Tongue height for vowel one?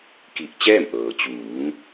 high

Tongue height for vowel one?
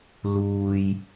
high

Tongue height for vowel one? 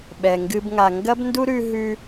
mid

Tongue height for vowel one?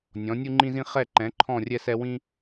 mid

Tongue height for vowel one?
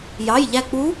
low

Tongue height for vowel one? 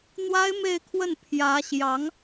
low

